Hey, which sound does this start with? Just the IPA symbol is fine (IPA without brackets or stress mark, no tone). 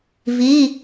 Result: v